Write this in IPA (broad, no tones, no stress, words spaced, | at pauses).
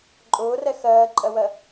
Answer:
ǃʼʊːrɛ xɜːǃʼɜwɜ